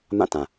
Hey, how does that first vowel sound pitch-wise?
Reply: falling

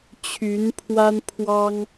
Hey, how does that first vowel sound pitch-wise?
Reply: rising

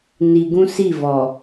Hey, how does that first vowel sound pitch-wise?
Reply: low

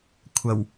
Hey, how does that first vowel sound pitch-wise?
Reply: low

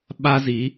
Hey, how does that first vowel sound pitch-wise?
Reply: high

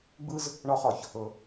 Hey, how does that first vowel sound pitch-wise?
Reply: high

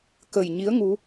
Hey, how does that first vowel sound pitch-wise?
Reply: low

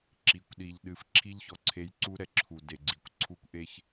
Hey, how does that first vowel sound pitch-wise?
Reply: low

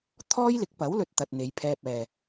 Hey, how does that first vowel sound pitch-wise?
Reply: high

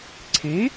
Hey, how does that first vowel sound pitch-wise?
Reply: rising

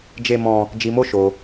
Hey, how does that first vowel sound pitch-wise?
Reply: high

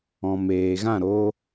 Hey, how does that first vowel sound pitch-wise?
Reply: low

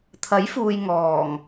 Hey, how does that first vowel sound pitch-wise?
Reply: rising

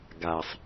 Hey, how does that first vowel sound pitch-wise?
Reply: low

